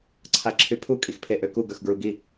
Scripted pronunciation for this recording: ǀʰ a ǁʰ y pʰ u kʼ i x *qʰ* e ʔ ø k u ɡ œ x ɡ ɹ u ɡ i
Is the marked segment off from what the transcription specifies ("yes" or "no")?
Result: yes